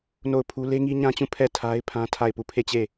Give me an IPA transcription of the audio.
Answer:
n o˦˨ ʊ̯ pʰ u˦ l e˦ ŋ i˦ ɲ ã˦ t͡ɕ ũ˦˨ pʰ ɛ˦˨ tʰ a˦ ɪ̯ pʰ ã˦ tʰ a˦˨ ɪ̯ p u˦˨ pʰ e˦˨ t͡ɕ e˦˨

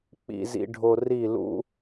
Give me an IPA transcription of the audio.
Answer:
k͡p ḭ˧ z ḭ˧ ɖʱ o˧ r i˦˨ l ṵ˦

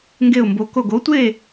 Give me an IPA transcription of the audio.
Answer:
ŋ ɡ e˥˧ ʊ̯ m b o˧˥ k o˥˧ ɡ o˧˥ tʷ e˥˧

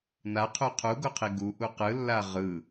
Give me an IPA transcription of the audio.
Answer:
n a qʰ u qʰ u ɡ o qʰ i ɡ u ʔ u q ɯ lː a ʁ ɯ

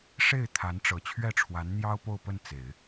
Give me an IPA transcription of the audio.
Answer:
ʂ e˥˩ ɪ̯ t̪ʰ a˧˥ n ʈ͡ʂ ɤ˨˩ t͡ɕʰ ɥ ɛ˥˩ ʈ͡ʂʰ w a˧˥ n n̪ j ɑ˥ ʊ̯ p o˥˧ ʊ̯ p ə˥˩ n t͡s e˨˩˦ ɪ̯

